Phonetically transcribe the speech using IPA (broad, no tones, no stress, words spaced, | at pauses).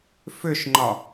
fʏʃŋ͡ǃɒ